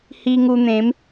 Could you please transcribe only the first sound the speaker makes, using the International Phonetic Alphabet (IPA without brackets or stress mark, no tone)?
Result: h